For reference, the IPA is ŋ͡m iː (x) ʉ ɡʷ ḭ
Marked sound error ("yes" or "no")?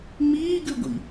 yes